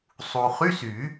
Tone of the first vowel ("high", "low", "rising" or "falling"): low